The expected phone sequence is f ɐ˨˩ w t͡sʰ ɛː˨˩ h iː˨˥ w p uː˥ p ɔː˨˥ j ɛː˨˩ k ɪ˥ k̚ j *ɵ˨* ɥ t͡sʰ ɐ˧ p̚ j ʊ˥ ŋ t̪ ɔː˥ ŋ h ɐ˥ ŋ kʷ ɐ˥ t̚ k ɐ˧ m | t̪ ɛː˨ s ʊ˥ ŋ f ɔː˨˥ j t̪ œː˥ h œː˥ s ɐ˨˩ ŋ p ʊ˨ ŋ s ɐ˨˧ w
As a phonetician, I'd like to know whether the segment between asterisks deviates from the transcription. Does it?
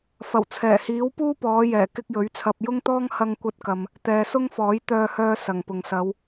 yes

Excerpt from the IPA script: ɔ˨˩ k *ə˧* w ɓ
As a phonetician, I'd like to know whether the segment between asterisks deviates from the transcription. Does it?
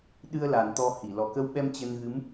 no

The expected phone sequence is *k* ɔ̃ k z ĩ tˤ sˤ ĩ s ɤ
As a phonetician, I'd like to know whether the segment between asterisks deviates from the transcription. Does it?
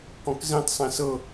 no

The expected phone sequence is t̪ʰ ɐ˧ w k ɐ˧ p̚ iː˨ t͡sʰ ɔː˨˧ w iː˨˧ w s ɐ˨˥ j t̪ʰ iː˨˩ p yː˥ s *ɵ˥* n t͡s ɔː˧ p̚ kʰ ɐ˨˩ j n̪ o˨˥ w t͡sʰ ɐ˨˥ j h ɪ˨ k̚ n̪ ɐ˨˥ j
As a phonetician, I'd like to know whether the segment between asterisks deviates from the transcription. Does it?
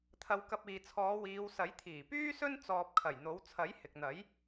no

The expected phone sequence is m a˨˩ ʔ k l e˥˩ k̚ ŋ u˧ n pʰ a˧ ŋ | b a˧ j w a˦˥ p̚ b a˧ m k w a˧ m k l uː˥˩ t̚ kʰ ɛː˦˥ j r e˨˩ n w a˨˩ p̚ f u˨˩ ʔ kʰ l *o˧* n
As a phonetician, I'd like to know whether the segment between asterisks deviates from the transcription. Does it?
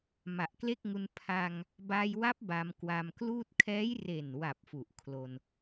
no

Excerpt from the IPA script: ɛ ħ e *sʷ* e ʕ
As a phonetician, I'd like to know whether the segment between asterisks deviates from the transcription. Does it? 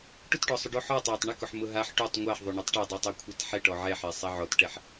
yes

